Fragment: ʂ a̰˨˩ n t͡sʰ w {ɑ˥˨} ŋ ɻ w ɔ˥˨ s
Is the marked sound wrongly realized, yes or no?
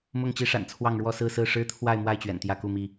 no